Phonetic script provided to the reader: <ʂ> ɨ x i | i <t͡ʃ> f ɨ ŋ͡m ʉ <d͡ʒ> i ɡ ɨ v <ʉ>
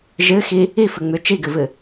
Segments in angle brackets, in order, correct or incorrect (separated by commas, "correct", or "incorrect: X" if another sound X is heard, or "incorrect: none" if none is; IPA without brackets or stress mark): incorrect: ʒ, incorrect: none, incorrect: t͡ʃ, incorrect: ɨ